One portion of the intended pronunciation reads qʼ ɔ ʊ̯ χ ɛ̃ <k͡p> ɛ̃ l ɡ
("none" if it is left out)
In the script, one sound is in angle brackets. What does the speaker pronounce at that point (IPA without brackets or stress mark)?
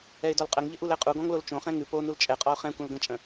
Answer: kʷ